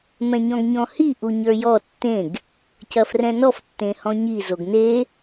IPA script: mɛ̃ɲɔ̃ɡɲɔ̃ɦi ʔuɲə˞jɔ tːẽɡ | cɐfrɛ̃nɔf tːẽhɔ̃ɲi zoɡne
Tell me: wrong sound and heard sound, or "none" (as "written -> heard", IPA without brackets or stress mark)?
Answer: ɦ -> h